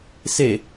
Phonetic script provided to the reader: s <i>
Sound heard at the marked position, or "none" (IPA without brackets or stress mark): e